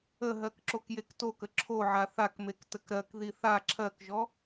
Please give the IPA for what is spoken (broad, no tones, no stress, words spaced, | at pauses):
əɦɜk ǁokjektokə ǁʰoʕa θakmek təkɾɜkði θa ǁʰɜkʒɔ